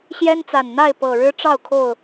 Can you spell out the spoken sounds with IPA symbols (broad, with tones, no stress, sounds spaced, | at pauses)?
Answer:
ɕ j ɛ˦ n t͡s a˨˩ n n̪ a˥˨ ɪ̯ p ɤ˨˩ ɻ ɻ̩˦ ʈ͡ʂ ɑ˥˨ ʊ̯ kʰ o˥˨ ʊ̯